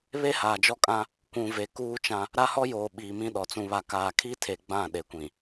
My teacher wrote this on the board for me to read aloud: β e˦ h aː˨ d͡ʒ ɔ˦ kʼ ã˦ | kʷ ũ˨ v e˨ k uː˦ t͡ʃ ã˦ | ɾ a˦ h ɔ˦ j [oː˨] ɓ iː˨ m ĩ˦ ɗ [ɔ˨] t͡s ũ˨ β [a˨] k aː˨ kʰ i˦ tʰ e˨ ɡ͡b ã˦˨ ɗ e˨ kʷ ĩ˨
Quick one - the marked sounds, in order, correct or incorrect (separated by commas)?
correct, correct, correct